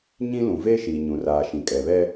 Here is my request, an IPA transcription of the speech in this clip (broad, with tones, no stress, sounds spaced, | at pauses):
ɲ ĩ˦ l ũ˨ v eː˦ ʃ iː˨ ɲ ũ˨ r aː˨ ʃ ĩ˨ kʼ ɛ˨ β ɛ˦